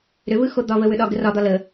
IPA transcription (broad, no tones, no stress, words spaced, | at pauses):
ɾʏvɯxo d̪ɒvəwʏɗɒ ɡərɒd̪ɒ lə